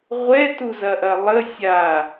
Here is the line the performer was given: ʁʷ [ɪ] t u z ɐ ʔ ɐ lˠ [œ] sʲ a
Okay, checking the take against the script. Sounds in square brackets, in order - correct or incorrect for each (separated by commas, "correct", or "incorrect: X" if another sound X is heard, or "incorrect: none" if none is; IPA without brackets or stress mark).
incorrect: ɛ, incorrect: ə